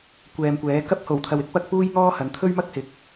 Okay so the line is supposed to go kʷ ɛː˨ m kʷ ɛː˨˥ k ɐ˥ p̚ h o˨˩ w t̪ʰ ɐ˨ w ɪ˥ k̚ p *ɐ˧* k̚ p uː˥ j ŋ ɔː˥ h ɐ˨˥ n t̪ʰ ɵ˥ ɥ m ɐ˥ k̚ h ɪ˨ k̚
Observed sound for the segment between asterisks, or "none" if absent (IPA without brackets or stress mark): ɐ˧